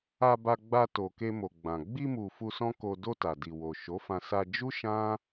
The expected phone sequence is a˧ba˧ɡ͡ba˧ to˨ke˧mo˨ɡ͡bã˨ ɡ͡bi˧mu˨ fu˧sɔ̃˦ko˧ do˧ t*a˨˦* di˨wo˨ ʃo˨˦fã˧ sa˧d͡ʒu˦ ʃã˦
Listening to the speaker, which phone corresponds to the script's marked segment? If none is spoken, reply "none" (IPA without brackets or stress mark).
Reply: a˨